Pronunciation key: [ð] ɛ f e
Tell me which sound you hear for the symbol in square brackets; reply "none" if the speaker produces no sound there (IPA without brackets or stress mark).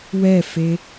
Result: w